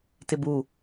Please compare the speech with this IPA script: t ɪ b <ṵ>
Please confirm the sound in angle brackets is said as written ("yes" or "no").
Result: no